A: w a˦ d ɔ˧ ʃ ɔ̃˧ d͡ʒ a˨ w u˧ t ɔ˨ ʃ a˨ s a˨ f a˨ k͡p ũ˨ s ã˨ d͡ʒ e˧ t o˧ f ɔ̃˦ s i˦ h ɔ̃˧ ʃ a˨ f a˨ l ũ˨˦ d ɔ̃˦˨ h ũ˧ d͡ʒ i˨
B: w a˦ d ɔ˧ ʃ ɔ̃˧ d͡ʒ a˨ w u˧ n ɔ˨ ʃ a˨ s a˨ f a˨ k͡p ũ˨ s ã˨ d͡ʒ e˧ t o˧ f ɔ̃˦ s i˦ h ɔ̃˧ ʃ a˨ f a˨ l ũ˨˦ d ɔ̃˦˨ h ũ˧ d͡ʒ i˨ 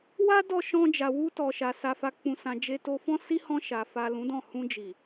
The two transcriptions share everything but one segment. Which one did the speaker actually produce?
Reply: A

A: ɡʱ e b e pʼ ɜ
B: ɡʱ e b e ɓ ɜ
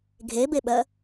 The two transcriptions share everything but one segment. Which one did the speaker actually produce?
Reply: B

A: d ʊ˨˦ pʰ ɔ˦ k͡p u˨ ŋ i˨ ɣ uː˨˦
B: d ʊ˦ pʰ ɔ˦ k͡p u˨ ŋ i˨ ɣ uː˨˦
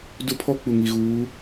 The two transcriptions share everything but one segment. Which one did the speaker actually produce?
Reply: B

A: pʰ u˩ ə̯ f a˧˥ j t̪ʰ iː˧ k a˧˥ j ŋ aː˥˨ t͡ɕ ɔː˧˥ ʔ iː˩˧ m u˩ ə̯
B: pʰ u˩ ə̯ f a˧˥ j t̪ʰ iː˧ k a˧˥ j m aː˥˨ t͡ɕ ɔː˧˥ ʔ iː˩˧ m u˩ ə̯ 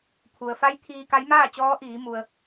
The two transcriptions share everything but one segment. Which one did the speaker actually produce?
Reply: B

